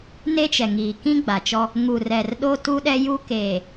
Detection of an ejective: absent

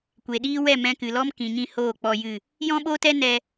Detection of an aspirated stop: absent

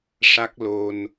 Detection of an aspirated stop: absent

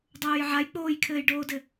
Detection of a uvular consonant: absent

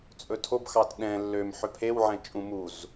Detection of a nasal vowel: present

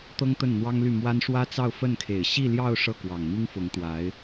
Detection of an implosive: absent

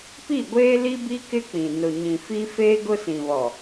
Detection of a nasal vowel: present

